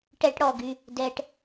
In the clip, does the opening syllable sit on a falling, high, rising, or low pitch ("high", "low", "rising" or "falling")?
high